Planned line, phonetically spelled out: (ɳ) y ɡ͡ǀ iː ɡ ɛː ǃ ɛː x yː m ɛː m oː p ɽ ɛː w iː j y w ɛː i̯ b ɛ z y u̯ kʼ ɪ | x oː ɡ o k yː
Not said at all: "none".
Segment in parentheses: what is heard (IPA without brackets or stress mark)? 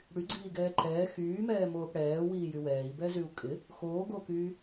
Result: ɽ